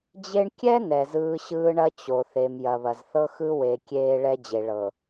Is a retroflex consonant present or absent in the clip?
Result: present